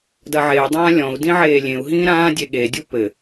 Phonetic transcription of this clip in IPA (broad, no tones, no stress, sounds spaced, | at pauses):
d ɐ ʕ e y̯ dˤ ãː lʲ ɔ̃ u̯ d ĩ ʕ eː lʲ ẽ u̯ ɦ ĩː ɾ ãː dʲ e ɠ e dʲ u p ɘ